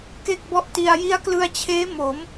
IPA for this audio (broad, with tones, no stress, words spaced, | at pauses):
ke˥˩k̚bɔ˦˥ʔti˧a̯ ji˦˥a̯klɯ˧a̯t͡ɕʰeː˦˥mo˩˦m